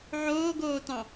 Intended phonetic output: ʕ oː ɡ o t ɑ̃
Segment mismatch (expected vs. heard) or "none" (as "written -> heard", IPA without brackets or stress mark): o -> oː